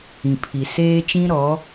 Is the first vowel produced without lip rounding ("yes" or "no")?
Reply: yes